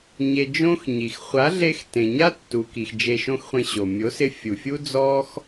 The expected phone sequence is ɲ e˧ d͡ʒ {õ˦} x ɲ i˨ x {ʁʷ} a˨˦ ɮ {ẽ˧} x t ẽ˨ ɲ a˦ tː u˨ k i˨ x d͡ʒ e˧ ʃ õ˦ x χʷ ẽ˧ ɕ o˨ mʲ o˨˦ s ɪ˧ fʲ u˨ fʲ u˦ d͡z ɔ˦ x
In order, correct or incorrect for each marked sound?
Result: correct, incorrect: χʷ, incorrect: e˧

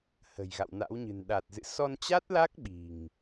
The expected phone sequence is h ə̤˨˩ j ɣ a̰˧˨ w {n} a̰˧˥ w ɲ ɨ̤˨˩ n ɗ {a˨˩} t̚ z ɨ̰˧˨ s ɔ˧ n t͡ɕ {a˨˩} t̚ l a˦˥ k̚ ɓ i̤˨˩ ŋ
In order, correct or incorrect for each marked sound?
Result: correct, correct, incorrect: a˦˥

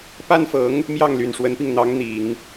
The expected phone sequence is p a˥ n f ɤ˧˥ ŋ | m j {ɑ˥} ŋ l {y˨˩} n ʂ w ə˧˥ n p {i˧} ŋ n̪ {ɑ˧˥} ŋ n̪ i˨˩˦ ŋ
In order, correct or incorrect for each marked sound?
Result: incorrect: ɑ˥˩, correct, correct, correct

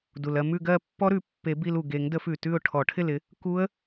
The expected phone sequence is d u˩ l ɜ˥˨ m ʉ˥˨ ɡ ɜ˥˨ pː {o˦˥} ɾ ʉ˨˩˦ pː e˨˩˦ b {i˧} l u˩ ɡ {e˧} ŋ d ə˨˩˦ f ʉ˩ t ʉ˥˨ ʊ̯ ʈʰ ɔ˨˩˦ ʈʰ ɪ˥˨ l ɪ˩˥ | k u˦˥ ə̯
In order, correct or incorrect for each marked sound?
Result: incorrect: ɔ˦˥, correct, incorrect: e˨˩˦

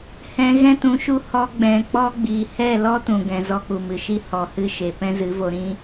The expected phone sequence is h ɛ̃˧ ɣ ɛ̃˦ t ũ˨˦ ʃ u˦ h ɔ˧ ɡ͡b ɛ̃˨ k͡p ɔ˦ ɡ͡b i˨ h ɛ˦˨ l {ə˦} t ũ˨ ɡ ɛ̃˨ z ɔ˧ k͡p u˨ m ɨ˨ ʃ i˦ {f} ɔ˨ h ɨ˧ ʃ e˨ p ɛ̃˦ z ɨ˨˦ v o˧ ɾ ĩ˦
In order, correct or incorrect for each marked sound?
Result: incorrect: ɔ˦, incorrect: h

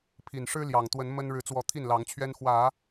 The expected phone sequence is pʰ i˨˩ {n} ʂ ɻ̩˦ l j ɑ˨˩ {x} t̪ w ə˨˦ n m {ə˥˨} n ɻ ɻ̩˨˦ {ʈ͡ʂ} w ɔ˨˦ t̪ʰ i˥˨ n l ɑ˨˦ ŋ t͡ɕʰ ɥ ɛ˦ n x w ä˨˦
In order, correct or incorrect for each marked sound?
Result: correct, incorrect: ŋ, incorrect: ə˦, incorrect: t͡s

